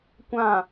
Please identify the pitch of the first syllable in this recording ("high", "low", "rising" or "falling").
falling